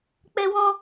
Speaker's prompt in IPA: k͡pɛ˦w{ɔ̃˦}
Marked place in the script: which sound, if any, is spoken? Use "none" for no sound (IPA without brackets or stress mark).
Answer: ɔ̃˦